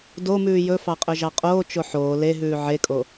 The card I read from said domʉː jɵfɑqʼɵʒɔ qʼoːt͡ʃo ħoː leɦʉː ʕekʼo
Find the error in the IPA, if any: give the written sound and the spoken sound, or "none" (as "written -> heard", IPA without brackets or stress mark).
ɔ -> ɑ